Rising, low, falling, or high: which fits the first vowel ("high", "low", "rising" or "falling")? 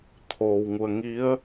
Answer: low